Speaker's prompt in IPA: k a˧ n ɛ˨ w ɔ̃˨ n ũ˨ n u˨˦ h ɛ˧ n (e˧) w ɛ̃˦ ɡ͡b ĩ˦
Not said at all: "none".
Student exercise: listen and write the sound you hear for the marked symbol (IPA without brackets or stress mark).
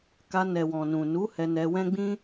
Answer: ɛ˧